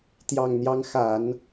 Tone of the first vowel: low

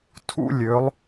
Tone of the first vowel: high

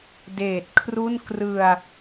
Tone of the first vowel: low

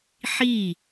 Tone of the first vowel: falling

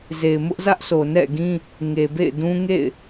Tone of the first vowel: low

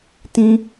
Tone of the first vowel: high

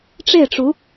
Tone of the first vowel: falling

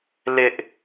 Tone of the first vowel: high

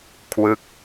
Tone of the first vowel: falling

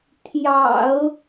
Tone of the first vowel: low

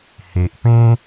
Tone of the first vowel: low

